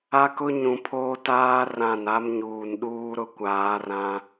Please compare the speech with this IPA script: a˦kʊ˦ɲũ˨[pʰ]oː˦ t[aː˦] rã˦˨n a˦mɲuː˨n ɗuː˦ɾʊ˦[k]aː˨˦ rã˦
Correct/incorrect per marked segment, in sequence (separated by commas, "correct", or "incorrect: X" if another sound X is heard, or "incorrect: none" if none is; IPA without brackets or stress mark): correct, correct, incorrect: kʷ